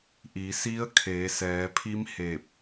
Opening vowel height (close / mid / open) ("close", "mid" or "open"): close